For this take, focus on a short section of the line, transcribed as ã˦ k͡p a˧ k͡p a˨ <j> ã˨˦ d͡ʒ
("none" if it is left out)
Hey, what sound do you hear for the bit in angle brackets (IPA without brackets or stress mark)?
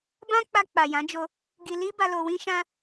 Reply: j